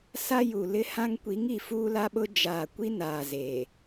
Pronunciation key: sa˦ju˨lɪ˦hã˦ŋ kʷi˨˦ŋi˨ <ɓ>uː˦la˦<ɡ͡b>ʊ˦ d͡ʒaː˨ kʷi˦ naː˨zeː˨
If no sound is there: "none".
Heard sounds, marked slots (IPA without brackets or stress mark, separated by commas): f, ɓ